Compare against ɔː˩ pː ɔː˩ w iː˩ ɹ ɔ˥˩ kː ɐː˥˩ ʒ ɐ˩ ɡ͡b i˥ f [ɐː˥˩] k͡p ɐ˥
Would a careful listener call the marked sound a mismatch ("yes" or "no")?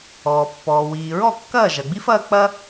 yes